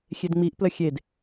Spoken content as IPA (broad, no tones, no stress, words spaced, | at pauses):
xʲedŋ͡miʔplə xʲed